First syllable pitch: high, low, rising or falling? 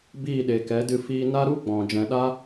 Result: falling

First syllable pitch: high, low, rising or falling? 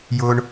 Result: low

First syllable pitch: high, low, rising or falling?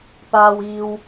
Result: high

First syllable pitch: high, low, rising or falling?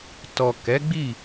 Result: low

